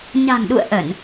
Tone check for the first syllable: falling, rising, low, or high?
low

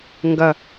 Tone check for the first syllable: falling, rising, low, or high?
low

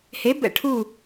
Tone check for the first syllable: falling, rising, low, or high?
rising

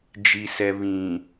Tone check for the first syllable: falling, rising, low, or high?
low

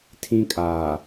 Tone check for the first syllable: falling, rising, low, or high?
high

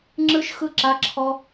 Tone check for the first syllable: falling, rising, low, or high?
high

